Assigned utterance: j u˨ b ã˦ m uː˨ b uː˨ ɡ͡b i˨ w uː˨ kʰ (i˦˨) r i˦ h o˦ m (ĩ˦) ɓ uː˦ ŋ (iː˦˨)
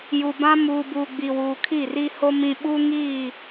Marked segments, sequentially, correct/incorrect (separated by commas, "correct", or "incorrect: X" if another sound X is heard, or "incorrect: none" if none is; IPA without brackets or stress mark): correct, correct, correct